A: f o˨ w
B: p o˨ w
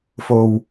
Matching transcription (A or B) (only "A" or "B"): A